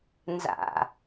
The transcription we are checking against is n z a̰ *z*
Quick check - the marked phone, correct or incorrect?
incorrect